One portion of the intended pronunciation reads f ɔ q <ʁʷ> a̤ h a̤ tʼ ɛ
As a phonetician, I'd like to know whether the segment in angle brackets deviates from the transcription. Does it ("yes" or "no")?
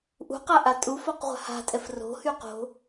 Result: no